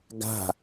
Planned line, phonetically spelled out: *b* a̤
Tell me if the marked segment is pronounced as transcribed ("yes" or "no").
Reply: no